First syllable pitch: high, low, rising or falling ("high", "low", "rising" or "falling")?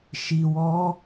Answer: low